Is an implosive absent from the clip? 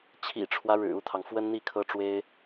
yes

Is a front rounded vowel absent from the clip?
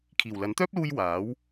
no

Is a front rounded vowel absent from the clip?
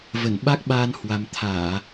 yes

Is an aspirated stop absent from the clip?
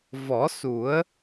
yes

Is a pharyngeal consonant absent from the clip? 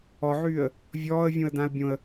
no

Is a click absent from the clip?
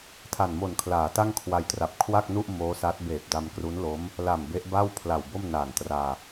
yes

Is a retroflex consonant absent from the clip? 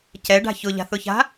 no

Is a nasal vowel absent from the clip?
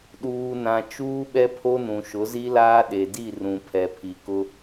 no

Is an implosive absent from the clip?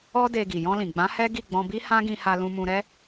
yes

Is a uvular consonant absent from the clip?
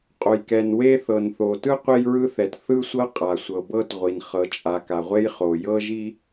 no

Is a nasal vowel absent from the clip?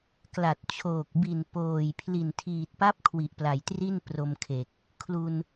yes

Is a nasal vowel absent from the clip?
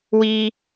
yes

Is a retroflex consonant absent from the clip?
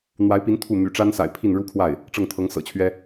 no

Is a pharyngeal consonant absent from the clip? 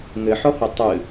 no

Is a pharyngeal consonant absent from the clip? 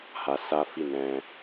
yes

